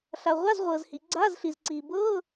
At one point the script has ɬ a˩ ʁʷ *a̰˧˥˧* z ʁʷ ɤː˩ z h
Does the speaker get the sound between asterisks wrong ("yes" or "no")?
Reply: yes